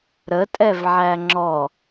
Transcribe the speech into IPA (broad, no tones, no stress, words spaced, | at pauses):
ɾətʼɛv ʕæŋ͡ǁɔ